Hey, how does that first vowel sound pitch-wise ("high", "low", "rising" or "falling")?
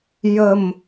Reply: low